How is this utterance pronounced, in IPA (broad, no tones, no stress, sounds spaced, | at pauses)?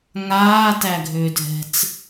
ŋ aː t æ ɡʱ ʏː dʱ ɛ̤ t͡s